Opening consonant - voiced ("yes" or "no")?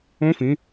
no